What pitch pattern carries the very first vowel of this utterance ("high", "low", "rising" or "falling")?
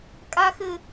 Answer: high